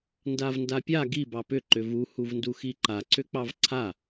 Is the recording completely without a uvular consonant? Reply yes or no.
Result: yes